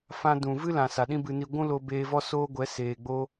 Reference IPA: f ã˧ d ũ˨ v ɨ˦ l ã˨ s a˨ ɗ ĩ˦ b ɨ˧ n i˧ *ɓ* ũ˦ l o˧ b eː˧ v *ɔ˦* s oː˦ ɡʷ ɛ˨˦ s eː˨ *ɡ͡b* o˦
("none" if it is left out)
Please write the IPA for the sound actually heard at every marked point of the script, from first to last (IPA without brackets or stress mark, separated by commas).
ɡʷ, ɔ˦, ɡ͡b